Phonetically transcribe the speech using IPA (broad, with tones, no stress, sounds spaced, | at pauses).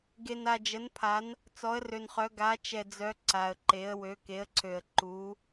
ɡ e˨ n a˨ d͡ʒ ə˨˦ n pʰ a˨˦ n | t͡s ɔ˨˦ ə̯ r ø˨ n χ œ˨˦ ɡ a˨˦ t͡ʃ ɛ˨ d͡z œ˨˦ ǀ a˨ ə̯ ǃ e˨˦ ə̯ w ø˨˦ k e˨˦ ə̯ ǀʰ ø˨ ə̯ ǃ u˨˦